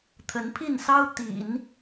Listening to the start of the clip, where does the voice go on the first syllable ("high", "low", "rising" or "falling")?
rising